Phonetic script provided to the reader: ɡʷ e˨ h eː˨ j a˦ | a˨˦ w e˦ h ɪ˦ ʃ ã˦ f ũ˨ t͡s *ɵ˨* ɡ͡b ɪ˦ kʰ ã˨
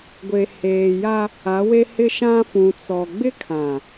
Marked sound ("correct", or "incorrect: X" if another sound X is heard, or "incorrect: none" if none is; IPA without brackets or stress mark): incorrect: ɔ˨